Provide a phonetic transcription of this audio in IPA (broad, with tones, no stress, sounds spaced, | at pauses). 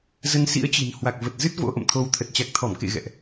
z ə˧ n s ḭ˧˥ ə̯ t͡ɕ i̤˨˩ n h w a˨˩ k̚ v ə˨˩ t̚ z ɨ˦˥ t̚ v o̰˧˥ ʔ ə̰˧˨ m t̪ʰ o˧ w t̪ʰ ə˨˩ t̚ t͡ɕ a˨˩ k̚ t̪ʰ ɔ˧˩ m k ḛ˧˨ ɣ ɛ̰˧˨ ʔ